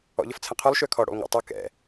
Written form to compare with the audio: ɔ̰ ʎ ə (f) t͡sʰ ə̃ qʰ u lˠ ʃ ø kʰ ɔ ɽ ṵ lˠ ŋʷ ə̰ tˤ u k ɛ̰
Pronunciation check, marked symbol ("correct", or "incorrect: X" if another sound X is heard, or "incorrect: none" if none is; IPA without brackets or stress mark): correct